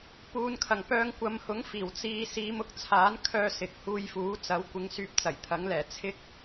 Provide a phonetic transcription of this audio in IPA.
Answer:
p uː˨˧ n kʰ ɐ˨˩ ŋ p œː˧ ŋ kʷ ɐ˨˧ m h ʊ˨˥ ŋ f iː˨˩ w t͡s iː˧ s iː˨˧ m ʊ˨ k̚ t͡sʰ aː˨˥ n kʰ œː˧ s ɪ˨ k̚ h uː˧ j f uː˨˥ t͡s ɐ˨˥ w kʷ ɪ˨˧ ŋ s yː˧ p̚ t͡s ɐ˨˩ j t̪ʰ ɐ˨˥ ŋ l ɛː˨˩ t͡sʰ ɪ˥ k̚

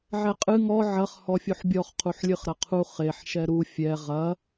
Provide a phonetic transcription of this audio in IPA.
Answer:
ʕ ɛ qʼ ɨ ŋ ɔ ʕ ɐ χ h ɔ fʲ u ħ bʲ ɔ χ qʰ u ħ lʲ ɨ χ ɾ ɐ qʰ u χ e ħ ʃ ɛ ɾ u fʲ ɛ ʁ ɐ

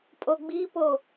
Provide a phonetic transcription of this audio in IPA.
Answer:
pʼ o ɡ͡b i p o

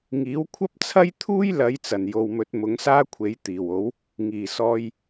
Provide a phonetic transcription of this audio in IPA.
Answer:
ŋ iː˨˥ w kʷʰ ɐ˥ p̚ t͡sʰ ɐ˥ j t̪ʰ uː˥ j l ɐ˨˧ j t͡s ɐ˨˩ n j o˨ w m ɵ˨˥ t̚ m ʊ˨˥ ŋ s aː˥ kʷʰ e˨˥ j t̪ iː˨˩ w o˨˥ w | ŋ iː˨˩ s ɔː˧ j

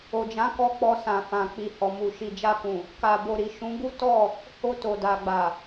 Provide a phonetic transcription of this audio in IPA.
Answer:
o˨ d͡ʒ ã˨˦ k ɔ˧ k͡p ɔ˧ s ã˨ f ã˨ k͡p i˨ h ɔ˨ m u˨ ʃ i˨ d͡ʒ a˧ k ũ˨ | k a˨ b o˨ ɾ i˨ ʃ ũ˨˦ ɡ u˦ t ɔ˦˨ | h o˧ t o˨ d a˨ ɡ͡b a˨

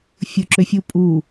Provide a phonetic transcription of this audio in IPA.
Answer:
fʲ ʊ ǁ ø fʲ u pʼ u

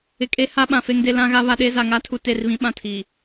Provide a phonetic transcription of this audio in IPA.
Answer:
ɪ˨ kʼ e˦ h a˦ ɓ ã˨ f e˦ ŋ d e˦ l ã˦ ɣ a˦ β a˦ ɗ e˦ z a˨ ŋ a˦ tʰ u˨ t e˦˨ r β ĩ˦ ɓ ã˦˨ tʰ i˨

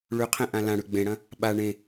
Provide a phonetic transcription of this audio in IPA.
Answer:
ɭ ʉ qʰ ẽ ʔ ã l ã ɽ ʉ ɡ͡b ẽ ɽ ɐ̃ | ɓ a ɳ ẽ

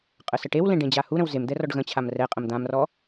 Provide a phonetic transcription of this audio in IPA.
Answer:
qʼ ə s ə ʈ e w l ẽ ɖ ẽ d͡ʑ a h u ɾ ə̃ w z e m d̪ ɛ r ɔ ɖ ɣ ə̃ t͡ɕʰ a m r ɛ qʼ ə̃ m d̪ ã m r ɔ

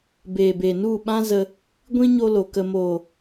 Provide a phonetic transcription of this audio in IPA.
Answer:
b eː˨ b e˨ n u˦˨ ɓ ã˦ z ə˧ | ɡʷ ĩ˦ ɲ o˧ l o˨ k ə˨ m oː˨

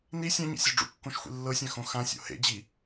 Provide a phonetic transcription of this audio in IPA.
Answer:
n i sʲ ã ɲ ḭ sʲ ɔ ɖ͡ʐ ṵ kː õ ʃ xʷ ḭ lː ɤ sʲ ã x õ x ã sʲ o̰ h ḛ d͡ʑ i

